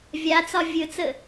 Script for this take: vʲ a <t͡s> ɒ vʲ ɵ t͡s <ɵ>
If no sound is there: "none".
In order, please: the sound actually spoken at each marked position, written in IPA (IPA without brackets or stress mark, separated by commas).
t͡s, ə